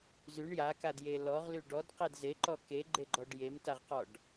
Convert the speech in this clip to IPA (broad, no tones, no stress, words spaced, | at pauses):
zyɳ jakadje lɔʁly ɖɔdqed zeǃɔ keɡ͡ǃeɡ͡ǃɔɖ jemtaʁqɔɖ